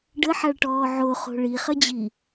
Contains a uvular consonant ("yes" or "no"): yes